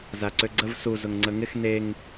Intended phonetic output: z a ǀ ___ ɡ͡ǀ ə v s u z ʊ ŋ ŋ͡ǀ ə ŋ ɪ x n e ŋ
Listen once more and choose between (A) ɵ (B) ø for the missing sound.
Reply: B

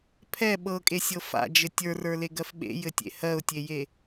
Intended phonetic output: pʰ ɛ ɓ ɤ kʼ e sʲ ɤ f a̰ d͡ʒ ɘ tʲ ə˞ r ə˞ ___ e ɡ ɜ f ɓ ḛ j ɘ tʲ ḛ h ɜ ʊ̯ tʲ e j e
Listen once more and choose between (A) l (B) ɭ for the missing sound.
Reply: A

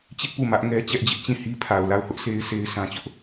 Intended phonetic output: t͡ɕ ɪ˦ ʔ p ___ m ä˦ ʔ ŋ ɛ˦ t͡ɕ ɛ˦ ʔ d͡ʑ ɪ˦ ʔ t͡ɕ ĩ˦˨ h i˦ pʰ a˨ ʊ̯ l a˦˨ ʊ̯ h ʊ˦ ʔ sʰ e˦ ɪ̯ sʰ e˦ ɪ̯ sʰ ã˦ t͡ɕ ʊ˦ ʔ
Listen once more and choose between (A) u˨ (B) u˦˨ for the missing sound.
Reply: B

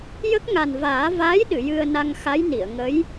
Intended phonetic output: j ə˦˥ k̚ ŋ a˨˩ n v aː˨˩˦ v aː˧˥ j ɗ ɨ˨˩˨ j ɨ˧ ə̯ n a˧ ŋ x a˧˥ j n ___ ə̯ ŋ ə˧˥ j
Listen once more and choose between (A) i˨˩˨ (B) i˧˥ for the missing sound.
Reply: A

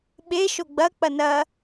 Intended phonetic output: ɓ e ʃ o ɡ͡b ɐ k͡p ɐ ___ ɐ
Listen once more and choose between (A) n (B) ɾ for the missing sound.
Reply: A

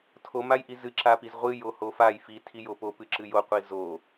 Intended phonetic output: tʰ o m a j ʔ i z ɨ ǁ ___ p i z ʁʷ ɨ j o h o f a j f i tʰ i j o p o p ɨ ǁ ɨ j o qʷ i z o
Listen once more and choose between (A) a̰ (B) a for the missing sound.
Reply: B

